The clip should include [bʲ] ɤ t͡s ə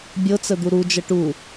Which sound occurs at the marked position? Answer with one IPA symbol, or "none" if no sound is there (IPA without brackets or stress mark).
bʲ